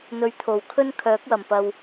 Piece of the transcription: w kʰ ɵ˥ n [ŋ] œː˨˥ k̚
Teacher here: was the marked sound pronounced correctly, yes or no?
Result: no